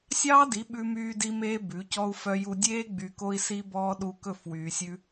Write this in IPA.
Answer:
sʲ ɑː˦ d i˨˦ ɓ ʉ˦ m yː˦ d i˦ m eː˦ b ʉ˨˦ c ɔ˦ u̯ f œ˧ j u˧ dʲ eː˦ ɡ͡b y˧ k o˦ i̯ s i˦ b ɔː˦ ɗ u˧ k ɵ˦˨ f w yː˨ sʲ ʉ˧

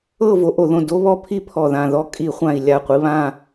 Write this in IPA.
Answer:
ɤ˥˧ v o˨˦ ʔ o˧˩˧ ð õ˧˩ d o˦˥ β ɔ˥˧ pʰ i˥˧ pʰ ɔ˧˩ ð ã˧˩ ð ɔ˦˥ kʼ i˧˩˧ χʷ ã˧˩ i̯ lʲ a˧˩ qʷ i˨˦ β ã˥˧

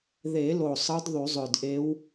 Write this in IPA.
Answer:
ð e˨˩˦ l o˨˩ sˤ ɯ˧˥ d ðˤ y˨˩˦ zˤ ø˨˩ d ʔ e˧˥ w

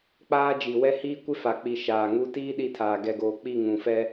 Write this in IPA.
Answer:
k͡p aː˦ d͡ʒ i˨ w ɛ˦ h iː˦ kʷ ɪ˦ f a˨ k͡p i˨ ʃ aː˨ ŋ u˦ t iː˦ ɗ i˦˨ tʰ aː˨ ɡ ɛ˨ ɡ oː˨ k͡p i˦˨ ŋ ũ˨ f ɛ˦

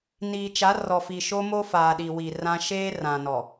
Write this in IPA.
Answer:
n iː˨ t͡ʃ a˨˦ r ɔ˨ f i˨ ʃ o˦ m o˦ f aː˨ ɗ i˨ w i˨ r ã˦ ʃ eː˦ r ã˨ n ɔ˨

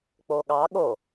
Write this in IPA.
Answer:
k͡p o ɠ ɑ ɠ o

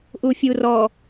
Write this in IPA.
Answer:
ʔ u fʲ u r ɔ

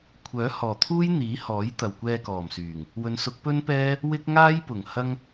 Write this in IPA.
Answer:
kʷʰ œː˨˥ h ɔː˨˩ t̪ʰ uː˥ j n̪ iː˨˥ h ɔː˨˥ j t̪ ɐ˨ w kʷ ɛː˧ k ɔː˨˩ m s yː˨˩ ŋ | w ɵ˨˧ n s ʊ˨˥ k̚ p ɵ˥ n p ɛː˥ | w ɪ˥ k̚ ŋ aː˥ j p ʊ˨˩ ŋ h ɐ˥ ŋ

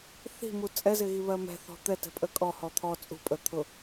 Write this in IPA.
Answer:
θ i̤ m u t͡sʼ ɛ z ɪ ɣ i β ɜ m ɛ̤ θ ɔ̤ t̪ ɛ t ɛ̤ pʼ ə kʼ ɔ h ɔ t̪ʰ ɔ t͡sʼ ṳ pʼ ə t̪ʰ ʊ

